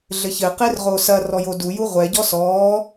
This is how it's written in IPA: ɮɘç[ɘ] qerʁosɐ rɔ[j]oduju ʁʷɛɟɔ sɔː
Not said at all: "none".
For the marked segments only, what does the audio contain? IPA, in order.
ɘ, j

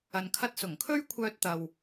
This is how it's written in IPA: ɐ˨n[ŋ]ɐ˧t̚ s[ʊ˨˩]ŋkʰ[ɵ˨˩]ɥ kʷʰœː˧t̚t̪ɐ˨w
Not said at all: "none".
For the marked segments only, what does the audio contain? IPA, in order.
kʰ, ʊ˨˩, ɵ˥

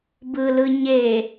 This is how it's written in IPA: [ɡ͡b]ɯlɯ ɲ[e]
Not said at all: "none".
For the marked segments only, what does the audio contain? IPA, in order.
b, e

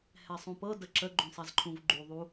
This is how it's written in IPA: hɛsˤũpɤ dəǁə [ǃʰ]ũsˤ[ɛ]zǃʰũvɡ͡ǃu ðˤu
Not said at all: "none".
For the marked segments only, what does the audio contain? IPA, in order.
ɡ͡ǃ, ɛ

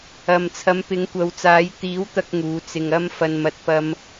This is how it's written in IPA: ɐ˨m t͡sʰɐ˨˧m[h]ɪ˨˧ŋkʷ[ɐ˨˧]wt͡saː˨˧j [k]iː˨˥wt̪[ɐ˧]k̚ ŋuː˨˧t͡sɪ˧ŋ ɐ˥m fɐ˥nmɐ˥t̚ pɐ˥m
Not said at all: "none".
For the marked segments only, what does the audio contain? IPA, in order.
p, ɐ˨˧, t̪, ɐ˧

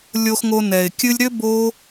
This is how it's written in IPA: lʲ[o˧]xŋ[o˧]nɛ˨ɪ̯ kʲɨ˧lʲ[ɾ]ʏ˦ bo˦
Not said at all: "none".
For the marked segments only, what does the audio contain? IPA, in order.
o˧, o˧, ɾ

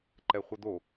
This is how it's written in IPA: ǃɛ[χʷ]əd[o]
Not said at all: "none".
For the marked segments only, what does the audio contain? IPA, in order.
χʷ, o

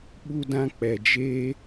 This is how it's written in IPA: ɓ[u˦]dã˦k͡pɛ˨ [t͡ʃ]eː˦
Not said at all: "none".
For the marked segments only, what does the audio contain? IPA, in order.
u˦, d͡ʒ

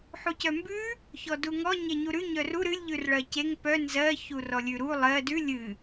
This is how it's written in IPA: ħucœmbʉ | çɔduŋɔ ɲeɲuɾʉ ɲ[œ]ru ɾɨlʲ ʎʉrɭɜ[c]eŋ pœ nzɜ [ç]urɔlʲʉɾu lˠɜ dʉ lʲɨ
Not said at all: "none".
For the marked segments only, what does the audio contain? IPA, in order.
œ, c, ç

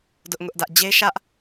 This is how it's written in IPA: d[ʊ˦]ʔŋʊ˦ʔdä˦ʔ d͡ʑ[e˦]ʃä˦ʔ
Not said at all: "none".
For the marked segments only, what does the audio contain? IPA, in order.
ʊ˦, e˦

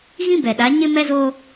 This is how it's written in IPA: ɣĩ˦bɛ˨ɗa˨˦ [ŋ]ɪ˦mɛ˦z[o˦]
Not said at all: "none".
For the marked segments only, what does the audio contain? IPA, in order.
ɲ, o˦

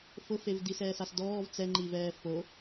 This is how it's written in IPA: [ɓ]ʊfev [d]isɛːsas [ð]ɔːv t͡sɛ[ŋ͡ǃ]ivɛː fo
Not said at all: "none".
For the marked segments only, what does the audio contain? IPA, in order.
f, d, d, ŋ͡ǃ

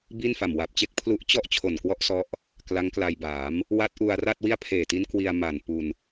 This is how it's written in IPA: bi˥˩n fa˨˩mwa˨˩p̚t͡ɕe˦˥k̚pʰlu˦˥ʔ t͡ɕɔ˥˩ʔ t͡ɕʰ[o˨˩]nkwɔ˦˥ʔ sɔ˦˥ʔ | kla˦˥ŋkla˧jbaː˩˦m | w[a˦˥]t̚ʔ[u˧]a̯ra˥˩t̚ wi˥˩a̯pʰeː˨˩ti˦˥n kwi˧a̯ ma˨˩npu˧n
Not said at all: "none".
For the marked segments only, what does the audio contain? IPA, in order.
o˨˩, a˦˥, u˧

